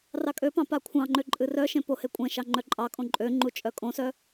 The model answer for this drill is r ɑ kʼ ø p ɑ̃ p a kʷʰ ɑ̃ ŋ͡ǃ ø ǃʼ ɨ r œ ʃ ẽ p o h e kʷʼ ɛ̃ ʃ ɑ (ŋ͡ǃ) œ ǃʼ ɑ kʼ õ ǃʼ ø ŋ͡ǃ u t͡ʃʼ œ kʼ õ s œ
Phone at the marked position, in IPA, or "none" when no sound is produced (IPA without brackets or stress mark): ŋ͡ǃ